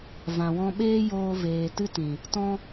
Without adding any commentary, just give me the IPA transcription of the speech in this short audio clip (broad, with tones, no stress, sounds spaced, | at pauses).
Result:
v ã˨ w ɔ̃˦ ɓ eː˦ j oː˧ v eː˧ t ɨ˦ t ĩ˨ | t ɔ̃˦